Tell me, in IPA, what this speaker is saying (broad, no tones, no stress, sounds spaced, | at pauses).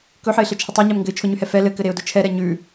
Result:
k ɵ ħ ɘ ɪ̯ ɬ ɘ t͡ʃʰ ə tˤ ɛ ɲ ɛ m ŋ ɡ ɘ ɪ̯ t͡ʃʰ ʊ ɲ ʉ h ɛ f ɛ l ɘ k ɘ ɾ e ʊ̯ d ʊ t͡ʃʰ ɛ ɾ ɛ ɲ ʉ